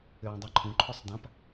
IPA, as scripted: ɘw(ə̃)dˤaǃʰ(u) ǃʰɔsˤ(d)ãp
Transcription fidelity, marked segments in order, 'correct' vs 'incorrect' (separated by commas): correct, incorrect, correct